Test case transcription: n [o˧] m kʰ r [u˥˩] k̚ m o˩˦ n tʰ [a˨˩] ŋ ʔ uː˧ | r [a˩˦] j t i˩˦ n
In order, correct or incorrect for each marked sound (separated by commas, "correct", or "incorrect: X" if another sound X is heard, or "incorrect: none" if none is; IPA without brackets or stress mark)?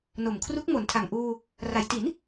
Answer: incorrect: o˨˩, incorrect: u˦˥, correct, correct